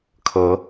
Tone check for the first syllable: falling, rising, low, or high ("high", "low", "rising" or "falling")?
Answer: rising